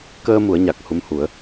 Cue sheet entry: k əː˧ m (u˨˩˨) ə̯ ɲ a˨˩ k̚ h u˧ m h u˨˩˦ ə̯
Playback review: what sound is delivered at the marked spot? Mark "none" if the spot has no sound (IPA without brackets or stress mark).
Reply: u˨˩˦